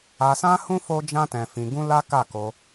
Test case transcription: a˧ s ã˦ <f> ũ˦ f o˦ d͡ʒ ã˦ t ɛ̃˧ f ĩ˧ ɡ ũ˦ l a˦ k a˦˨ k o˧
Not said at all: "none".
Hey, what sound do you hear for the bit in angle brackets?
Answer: h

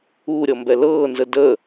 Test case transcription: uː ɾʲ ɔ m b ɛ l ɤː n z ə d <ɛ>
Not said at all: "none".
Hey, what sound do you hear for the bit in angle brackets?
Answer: ə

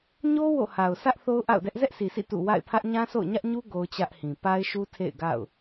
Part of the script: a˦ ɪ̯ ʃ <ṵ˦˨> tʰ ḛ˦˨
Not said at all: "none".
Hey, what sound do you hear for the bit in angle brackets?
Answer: u˦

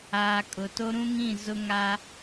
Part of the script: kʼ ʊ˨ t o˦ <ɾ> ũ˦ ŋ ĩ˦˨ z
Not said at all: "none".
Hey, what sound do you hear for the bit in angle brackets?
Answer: ɾ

